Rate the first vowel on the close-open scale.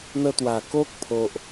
mid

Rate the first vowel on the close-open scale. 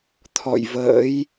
mid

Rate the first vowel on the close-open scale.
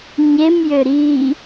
mid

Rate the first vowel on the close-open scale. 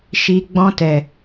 close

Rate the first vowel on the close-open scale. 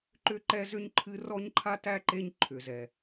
close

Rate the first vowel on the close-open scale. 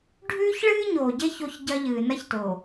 close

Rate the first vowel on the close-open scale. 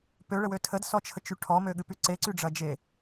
mid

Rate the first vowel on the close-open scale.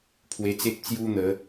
mid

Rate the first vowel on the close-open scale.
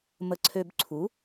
mid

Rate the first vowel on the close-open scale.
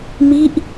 close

